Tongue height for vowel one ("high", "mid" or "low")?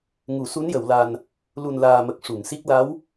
high